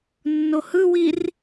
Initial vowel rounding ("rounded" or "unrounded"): rounded